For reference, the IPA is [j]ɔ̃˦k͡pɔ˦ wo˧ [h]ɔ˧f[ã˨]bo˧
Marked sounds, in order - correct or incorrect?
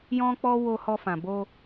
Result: correct, correct, correct

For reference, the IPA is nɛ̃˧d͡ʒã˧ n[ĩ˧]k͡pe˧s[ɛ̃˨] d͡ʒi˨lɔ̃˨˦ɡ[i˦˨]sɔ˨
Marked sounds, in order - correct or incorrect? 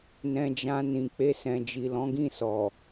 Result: incorrect, correct, incorrect

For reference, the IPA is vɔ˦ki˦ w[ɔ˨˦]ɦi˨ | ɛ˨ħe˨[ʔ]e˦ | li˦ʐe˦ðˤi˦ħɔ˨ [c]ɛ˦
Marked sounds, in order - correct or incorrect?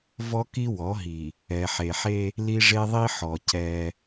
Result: correct, incorrect, correct

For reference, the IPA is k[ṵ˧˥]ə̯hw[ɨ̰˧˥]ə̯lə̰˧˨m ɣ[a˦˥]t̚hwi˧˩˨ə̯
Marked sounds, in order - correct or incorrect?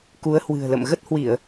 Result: incorrect, incorrect, incorrect

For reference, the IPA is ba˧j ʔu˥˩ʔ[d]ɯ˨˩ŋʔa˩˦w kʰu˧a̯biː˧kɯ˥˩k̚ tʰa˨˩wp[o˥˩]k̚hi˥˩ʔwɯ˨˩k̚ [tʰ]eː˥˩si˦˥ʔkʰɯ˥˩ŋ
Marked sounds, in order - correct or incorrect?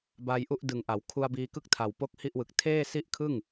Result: correct, correct, correct

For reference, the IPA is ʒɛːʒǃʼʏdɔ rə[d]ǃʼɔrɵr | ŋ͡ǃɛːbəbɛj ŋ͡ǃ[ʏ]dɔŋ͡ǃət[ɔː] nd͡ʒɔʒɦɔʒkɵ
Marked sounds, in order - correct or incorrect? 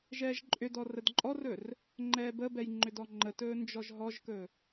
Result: correct, correct, incorrect

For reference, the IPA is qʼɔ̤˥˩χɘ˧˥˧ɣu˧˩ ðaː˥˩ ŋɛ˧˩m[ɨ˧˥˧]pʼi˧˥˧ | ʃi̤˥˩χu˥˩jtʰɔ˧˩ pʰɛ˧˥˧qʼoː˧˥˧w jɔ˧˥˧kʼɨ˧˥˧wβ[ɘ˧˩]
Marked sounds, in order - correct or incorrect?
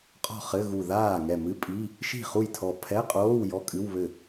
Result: correct, incorrect

